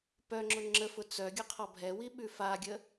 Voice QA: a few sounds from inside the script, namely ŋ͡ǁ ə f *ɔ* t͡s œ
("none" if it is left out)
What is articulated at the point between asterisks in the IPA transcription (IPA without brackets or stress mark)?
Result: ʊ